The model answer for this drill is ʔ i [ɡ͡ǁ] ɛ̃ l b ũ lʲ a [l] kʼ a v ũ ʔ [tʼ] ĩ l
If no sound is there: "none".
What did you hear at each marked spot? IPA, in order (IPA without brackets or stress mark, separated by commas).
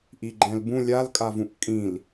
ɡ͡ǃ, l, kʼ